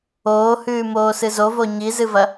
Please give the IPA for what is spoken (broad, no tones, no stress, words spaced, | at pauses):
oːhʉːmoː sɨzovo ɲizɨvɐ